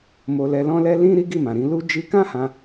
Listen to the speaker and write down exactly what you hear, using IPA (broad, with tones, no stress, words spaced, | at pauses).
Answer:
mo˧lɛ˧ lɔ̃˦lɛ˦ lĩ˦ ɾi˦ɡi˦˨mã˨ɾĩ˧ lu˧ d͡ʒi˧kã˦hã˧